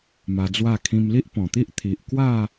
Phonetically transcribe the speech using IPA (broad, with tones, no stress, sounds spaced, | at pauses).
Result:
m a˧ d͡z w a˥˧ kʰ ĩ˧ m l i˦ ʔ p ɔ̃˨˩ t̪ i˦ ʔ t̪ʰ i˨ ʔ k w a˥˧